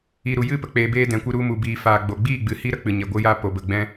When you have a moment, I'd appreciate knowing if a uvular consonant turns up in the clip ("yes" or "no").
no